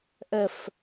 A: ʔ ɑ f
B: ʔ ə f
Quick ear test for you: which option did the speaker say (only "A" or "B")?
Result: B